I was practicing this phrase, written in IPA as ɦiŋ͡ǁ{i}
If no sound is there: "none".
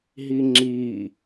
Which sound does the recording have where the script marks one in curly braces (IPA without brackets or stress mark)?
i